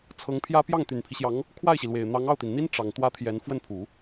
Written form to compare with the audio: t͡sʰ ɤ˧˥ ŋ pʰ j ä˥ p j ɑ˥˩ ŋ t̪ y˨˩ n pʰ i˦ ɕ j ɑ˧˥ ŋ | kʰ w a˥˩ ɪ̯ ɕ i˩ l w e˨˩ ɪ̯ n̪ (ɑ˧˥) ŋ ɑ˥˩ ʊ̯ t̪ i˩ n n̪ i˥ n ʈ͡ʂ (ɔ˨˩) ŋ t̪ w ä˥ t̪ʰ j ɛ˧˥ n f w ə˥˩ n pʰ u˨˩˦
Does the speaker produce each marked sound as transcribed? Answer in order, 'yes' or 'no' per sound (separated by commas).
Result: yes, no